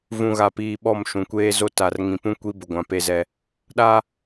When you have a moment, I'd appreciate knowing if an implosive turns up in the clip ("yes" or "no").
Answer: yes